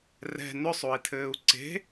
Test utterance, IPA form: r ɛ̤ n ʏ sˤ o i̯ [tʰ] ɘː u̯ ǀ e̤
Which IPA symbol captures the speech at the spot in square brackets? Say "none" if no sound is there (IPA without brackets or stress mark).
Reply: tʰ